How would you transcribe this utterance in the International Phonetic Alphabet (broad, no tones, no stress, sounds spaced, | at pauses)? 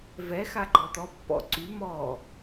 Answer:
v ɛ x a ɡ͡ǃ ɔ t̪ ɔ pː ɔ̰ ǀ y m ɔ